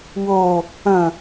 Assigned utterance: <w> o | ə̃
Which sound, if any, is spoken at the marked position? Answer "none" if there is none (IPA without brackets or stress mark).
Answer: w